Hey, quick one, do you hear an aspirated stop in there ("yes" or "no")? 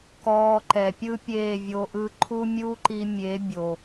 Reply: yes